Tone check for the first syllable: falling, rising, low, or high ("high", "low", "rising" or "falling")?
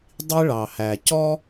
high